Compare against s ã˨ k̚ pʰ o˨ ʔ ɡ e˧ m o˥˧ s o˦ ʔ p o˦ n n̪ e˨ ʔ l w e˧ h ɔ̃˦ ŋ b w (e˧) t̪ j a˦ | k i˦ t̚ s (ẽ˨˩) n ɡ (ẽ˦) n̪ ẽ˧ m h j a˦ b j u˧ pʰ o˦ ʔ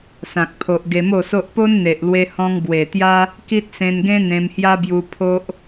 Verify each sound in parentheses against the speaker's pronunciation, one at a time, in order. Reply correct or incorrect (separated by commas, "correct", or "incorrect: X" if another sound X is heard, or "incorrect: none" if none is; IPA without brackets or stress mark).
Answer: incorrect: e˨˩, incorrect: ẽ˧, correct